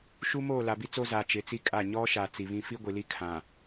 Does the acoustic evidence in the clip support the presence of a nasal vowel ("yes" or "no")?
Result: yes